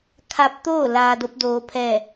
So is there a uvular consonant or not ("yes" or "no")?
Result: no